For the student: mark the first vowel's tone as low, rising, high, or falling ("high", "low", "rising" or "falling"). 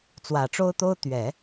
low